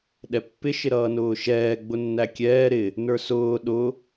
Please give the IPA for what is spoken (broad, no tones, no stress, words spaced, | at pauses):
ɗɛpːɪ ʃɪɾʌːnʊːʃɛː ɡ͡bʊnːækʲɛː ɾɪ | nə˞sʊː ɗʊ